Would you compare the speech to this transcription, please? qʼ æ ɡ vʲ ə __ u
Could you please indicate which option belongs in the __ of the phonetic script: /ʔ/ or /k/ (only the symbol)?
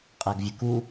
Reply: k